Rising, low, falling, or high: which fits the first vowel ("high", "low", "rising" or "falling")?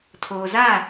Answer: low